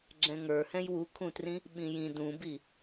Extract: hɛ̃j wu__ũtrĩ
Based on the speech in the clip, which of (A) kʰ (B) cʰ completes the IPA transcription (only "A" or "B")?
A